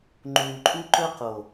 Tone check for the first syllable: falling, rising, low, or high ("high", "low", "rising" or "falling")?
low